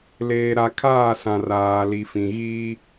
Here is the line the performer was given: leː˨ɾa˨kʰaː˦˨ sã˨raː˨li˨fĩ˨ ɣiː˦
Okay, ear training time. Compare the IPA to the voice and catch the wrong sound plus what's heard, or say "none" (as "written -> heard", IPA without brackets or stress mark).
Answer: none